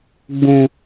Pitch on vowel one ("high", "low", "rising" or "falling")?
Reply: high